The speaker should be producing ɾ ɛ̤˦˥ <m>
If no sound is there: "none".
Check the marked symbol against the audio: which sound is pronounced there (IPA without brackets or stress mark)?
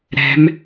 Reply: m